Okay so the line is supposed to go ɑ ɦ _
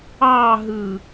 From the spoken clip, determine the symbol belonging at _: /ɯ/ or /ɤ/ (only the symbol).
ɯ